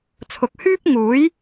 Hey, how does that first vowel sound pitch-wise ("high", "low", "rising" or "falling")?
low